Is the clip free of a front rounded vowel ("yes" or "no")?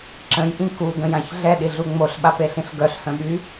no